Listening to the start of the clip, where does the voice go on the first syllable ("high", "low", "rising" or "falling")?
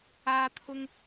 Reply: high